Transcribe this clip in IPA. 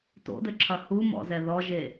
t o̰ d ɘ ǁʰ ɐ h u m ɔ̰ z ɛ ð ɔ ʒ e

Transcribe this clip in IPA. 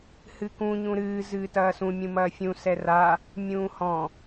h ɨ k ũ ɲ ũ ɾ ɨː z ɨː t ɐː s ũ mʲ ũ m ɐː fʲ ũ s ɛ r a | mʲ ũː h ɔ̃

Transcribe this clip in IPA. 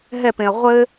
ɦ ɛ p ẽ ɐ̯ ʁʷ ɘ

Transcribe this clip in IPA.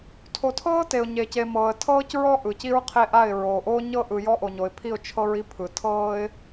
tʰ o˨ tʰ ɤː˦ t e˨ ʊ̯ ɲ e˨ c e˨ m ɤː˨ ə̯ tʰ ɤː˦ c ɹ ɔ˦ ʔ ɯ˨ c i˦ ɹ qʰ e˦ ʔ a˦˨ ɪ̯ ɹ oː˨ ʔ oː˦ ɲ ɤ˦ ʔ ɯ˨ j ɔ˦ ʔ o˨ ɲ o˨ ɪ̯ pʰ i˦˨ ʊ̯ t͡ʃʰ ɤ˦ ɹ i˦ pʰ ɯ˨ tʰ ɤː˦ ɪ̯

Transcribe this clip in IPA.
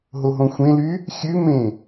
ɦ o ɦ õ xʷ ẽ l y | xʲ ʉ m ẽ

